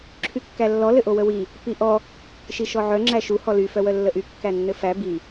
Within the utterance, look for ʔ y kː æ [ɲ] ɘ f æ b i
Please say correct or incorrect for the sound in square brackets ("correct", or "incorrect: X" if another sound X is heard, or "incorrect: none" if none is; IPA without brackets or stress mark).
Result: incorrect: nː